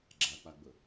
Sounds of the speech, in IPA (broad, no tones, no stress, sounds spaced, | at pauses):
ɡ͡ǁ a k͡p a ɡ͡b ɵ